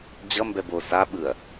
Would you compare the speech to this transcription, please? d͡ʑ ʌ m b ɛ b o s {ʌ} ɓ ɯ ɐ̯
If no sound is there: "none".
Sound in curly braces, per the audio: a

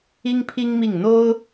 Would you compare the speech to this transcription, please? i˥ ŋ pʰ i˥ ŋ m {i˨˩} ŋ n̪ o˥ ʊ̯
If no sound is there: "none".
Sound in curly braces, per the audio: i˥˩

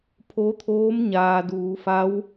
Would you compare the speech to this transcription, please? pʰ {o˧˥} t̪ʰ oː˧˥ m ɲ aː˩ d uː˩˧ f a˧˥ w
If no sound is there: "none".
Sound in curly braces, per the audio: o˧˥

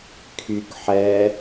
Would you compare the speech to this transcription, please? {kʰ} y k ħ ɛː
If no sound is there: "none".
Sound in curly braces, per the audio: kʰ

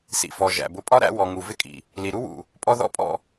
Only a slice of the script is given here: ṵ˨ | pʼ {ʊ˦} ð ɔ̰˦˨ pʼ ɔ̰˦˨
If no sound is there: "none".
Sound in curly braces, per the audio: ɔ˦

